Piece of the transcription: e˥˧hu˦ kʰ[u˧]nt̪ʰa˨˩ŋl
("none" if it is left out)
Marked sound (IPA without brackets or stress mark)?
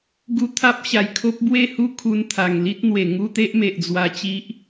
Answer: u˧